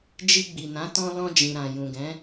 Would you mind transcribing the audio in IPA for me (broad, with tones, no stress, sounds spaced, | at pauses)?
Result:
d͡ʒ i˧ ɡ͡b i˨ n ã˨˦ t ɔ̃˧ l ɔ̃˧ d͡ʒ ĩ˨ ɾ ã˨ j ũ˨ ɡ ɛ̃˨˦